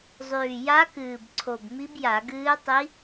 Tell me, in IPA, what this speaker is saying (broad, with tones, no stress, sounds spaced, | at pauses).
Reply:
zˤ ʉː˨˩ j a˧˥ k ɨː˨˩ b ǀʰ o˨˩ b m i˧˥ b j a˧˩˧ ɡ ɨː˧˥ tˤ i˧˥